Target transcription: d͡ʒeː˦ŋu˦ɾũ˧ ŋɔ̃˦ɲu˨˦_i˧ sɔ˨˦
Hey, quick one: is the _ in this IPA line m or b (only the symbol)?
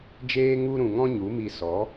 m